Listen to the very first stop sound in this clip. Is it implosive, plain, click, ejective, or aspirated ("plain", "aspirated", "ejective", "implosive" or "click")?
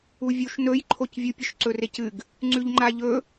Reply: click